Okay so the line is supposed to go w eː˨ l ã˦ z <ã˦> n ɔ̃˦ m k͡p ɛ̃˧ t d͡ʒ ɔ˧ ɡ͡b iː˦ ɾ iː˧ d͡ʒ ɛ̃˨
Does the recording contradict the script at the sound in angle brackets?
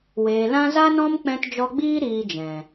yes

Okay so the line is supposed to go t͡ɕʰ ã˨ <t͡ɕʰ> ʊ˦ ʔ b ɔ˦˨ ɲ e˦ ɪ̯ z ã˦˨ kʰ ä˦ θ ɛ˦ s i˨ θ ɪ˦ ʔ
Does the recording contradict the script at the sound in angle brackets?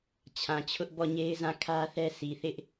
no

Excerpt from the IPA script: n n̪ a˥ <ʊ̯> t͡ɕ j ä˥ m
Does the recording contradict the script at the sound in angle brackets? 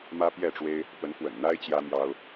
yes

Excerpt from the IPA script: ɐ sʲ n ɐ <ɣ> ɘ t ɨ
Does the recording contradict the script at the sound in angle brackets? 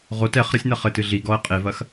yes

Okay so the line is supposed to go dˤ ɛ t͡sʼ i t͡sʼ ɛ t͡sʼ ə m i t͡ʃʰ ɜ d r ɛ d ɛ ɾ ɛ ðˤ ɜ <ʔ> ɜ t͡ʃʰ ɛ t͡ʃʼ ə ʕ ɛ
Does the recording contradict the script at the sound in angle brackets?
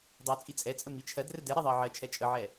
yes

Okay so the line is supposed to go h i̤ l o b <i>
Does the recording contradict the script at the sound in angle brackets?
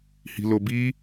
no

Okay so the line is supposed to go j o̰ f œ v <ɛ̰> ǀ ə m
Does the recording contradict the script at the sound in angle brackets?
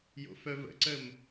yes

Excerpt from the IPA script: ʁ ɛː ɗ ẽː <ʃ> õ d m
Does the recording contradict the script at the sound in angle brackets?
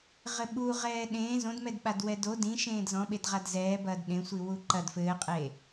yes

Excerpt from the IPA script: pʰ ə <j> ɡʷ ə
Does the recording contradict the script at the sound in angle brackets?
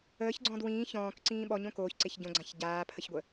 yes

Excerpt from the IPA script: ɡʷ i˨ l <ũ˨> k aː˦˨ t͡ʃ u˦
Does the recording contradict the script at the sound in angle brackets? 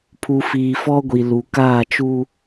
yes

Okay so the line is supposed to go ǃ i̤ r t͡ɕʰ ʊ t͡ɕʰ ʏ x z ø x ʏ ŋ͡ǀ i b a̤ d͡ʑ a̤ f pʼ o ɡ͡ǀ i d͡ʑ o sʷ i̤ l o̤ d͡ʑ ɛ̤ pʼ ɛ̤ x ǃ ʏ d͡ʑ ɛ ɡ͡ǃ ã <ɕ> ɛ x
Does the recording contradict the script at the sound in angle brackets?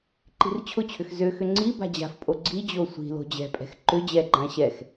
no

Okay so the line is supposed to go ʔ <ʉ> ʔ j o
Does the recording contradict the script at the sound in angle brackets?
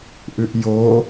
no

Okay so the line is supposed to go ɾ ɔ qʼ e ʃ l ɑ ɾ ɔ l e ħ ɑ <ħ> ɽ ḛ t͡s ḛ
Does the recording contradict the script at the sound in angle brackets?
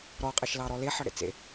yes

